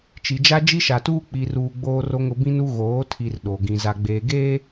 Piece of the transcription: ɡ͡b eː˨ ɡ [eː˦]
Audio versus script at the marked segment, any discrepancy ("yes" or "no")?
no